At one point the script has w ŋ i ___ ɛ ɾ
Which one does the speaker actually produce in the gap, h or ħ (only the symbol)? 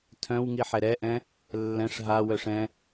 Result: ħ